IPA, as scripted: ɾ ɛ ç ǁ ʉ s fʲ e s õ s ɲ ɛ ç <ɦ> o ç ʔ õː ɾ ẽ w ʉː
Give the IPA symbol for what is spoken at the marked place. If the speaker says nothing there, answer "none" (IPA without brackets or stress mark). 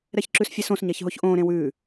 ɦ